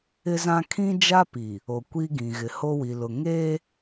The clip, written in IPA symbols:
ɪ˦zã˦ kʰĩ˦d͡ʒa˦pi˨ | o˨kʷi˦ɡĩ˨ ɣɪ˨ho˦wi˨lʊ˨ ŋeː˦

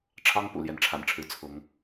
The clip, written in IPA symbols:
ʈ͡ʂʰɑ˦ŋ pṵ˨˩ljɛ˨˦nʈ͡ʂʰa̰˨˩nʈ͡ʂʰɻ̩˨˦ t͡sʰʊ˨˦ŋ

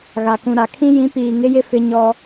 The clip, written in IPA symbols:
ɣa˨kũ˨ɾa˨ kʰĩ˦jĩ˨˦ piː˨ŋɪ˦jɪ˦ fɪ˦ɲɔ˦

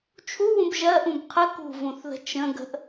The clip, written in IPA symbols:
t͡ʃʰuwũb ʒɜʔũb qʰə kṳvũθðə̤ t͡ʃə̃ ɡə̤ʔ

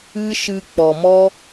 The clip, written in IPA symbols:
ɨ˦ʃɨ˧ k͡pɔ˨mɔ˦

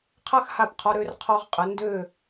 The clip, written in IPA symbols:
qʰa˥xha˧˩pqʰɔ˧ ɾø˧rqʰɔ˧ʁqʼə˩˧ ndø˧˩

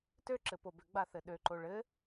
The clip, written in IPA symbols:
tøǁɘ pobʏɡ͡ba θɘɗøǃo ɭɘ

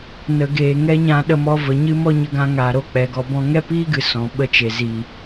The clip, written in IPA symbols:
nə˨ ɡeː˨ŋɛ˦ɲã˧ ɗə˧mɔ˧və˨ɲɨ˦ mɔ˦ɲə˧ɡã˧ŋaː˨ ɾo˦k͡pɛ˨ɡɔ˧bɔ̃˦ ŋɛ˦piː˦ɡɨ˨ sɔ̃˨ ɓə˦t͡ʃe˨ ziː˨

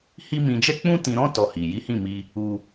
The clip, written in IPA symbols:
hi˦mĩ˧ d͡ʒɛ˦k͡pũ˦tĩ˧ɾɔ̃˦ tɔ˧hi˨ ji˨˦hĩ˦˨mi˧ | u˦

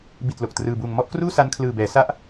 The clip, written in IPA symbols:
bi˨˩t̚ lo˨˩k̚trɯː˧buː˧ŋ mɔ˦˥ʔkruː˥˩sa˦˥nkʰlɯː˨˩ bɛː˩˦sa˦˥ʔ

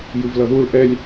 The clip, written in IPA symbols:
jɯvlʌðuɭ ʔɛlʲ

